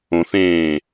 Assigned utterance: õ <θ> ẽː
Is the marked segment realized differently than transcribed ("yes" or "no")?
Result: no